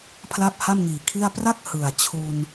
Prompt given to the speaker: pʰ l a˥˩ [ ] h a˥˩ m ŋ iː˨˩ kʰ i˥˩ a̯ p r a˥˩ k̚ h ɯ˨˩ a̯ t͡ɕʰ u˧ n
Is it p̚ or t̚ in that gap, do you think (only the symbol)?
p̚